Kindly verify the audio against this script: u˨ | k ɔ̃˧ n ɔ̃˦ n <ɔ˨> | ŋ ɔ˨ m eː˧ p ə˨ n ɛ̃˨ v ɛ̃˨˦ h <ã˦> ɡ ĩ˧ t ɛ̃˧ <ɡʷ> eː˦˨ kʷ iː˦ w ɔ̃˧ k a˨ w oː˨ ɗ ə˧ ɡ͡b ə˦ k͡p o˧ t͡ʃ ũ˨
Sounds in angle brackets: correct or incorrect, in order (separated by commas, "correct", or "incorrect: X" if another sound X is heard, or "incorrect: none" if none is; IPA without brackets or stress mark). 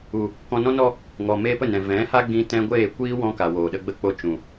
incorrect: ɔ˧, incorrect: a˦, correct